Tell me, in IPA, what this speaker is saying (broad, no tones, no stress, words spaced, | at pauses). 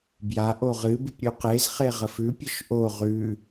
bja ʔoʁɨ bɨpɾʲʉqez χeʁəfʉ pʲɘʃʔo ʁʉ